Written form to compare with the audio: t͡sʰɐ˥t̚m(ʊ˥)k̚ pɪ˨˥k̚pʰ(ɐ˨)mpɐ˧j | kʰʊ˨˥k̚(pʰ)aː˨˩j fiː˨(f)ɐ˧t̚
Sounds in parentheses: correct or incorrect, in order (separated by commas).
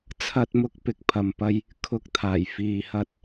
correct, correct, incorrect, incorrect